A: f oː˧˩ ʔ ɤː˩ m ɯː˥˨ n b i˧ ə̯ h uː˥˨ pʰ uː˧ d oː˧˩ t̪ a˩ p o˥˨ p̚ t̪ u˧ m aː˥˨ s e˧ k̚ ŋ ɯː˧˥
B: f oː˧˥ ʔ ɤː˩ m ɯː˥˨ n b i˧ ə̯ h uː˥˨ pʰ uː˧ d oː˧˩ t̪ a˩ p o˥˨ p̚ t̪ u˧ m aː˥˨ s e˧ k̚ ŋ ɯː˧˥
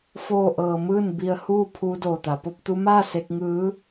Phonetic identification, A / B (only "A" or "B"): A